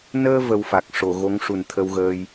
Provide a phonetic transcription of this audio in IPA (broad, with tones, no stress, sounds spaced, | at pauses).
n əː˧ v ə˧ w f a˨˩ k̚ ʂ o˨˩˨ ɣ o˧˥ ŋ ʂ u˨˩ n t̪ʰ ə˧ w ɣ əː˧ j